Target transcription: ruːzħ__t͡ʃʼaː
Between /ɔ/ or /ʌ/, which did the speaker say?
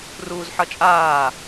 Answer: ʌ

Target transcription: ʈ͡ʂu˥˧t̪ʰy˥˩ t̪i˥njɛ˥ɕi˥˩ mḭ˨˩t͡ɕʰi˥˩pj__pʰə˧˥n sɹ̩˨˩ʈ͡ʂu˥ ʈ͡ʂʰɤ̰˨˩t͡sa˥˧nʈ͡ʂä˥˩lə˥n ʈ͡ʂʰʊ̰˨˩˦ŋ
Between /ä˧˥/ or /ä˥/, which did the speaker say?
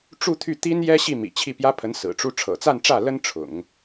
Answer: ä˥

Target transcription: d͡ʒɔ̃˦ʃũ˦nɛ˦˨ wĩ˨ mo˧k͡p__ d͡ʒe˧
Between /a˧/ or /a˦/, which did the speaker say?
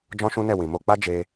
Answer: a˦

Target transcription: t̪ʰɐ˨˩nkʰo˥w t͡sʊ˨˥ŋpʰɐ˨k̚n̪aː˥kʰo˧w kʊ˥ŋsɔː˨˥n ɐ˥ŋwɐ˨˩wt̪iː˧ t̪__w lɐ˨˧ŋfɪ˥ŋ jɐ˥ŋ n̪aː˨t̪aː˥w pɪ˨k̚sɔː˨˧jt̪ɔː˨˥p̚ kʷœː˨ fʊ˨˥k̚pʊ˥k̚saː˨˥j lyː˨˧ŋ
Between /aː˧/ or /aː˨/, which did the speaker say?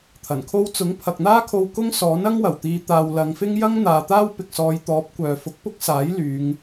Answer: aː˧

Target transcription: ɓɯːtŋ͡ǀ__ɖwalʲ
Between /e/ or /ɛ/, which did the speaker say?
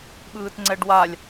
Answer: ɛ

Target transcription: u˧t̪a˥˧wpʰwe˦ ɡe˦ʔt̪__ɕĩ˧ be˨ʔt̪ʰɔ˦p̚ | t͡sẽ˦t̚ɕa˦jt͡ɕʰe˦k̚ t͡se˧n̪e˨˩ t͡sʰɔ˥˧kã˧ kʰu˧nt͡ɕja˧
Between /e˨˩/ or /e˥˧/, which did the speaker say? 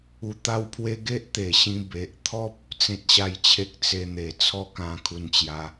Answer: e˨˩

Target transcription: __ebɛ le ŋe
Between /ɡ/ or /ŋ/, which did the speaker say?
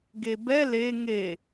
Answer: ɡ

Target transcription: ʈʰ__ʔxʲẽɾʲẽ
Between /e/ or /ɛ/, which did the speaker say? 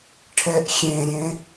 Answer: ɛ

